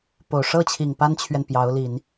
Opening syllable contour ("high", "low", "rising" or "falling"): low